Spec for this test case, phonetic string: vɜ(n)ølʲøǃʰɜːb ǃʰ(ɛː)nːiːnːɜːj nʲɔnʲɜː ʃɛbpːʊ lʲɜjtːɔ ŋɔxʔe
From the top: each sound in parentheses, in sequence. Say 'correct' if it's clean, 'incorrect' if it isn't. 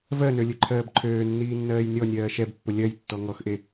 correct, incorrect

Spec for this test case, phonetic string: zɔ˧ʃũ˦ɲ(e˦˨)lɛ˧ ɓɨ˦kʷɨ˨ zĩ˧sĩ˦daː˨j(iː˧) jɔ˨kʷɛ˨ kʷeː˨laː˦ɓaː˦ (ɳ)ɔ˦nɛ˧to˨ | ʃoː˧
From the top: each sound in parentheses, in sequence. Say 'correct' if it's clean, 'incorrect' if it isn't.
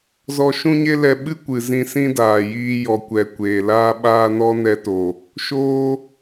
incorrect, correct, incorrect

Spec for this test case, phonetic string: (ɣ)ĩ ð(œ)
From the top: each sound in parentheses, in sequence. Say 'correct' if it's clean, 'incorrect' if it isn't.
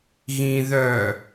correct, correct

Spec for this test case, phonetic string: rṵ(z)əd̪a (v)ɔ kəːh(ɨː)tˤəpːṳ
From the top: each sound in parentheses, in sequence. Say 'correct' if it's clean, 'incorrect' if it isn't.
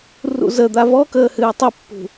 correct, correct, correct

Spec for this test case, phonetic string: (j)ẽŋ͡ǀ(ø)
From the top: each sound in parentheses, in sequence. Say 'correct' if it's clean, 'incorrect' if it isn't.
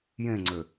correct, correct

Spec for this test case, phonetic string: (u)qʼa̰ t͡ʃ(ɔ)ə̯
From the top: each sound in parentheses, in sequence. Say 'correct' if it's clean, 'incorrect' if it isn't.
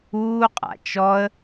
incorrect, correct

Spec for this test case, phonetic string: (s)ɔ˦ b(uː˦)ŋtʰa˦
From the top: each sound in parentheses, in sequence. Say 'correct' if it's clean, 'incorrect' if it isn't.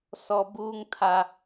correct, correct

